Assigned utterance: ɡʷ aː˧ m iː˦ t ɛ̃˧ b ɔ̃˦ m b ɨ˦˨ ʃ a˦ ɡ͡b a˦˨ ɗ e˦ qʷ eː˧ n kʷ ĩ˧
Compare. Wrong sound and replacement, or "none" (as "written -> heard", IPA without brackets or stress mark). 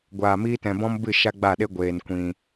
qʷ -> ɡʷ